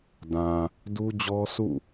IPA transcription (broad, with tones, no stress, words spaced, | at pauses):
dã˨ | du˦d͡ʑɔ˦sṵ˦˨